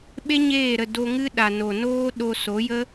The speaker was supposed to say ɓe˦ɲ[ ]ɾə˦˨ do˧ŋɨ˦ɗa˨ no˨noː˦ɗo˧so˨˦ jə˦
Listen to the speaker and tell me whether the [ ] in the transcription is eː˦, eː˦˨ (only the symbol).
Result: eː˦˨